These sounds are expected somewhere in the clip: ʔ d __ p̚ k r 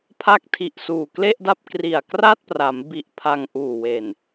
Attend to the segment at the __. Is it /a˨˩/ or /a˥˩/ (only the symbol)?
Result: a˥˩